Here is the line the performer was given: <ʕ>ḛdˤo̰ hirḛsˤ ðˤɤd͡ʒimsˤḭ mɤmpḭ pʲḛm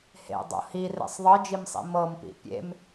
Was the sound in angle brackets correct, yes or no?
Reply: no